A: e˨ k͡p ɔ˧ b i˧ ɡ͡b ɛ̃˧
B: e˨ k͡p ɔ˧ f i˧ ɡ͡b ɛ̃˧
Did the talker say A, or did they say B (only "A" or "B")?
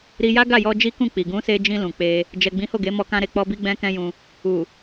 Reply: A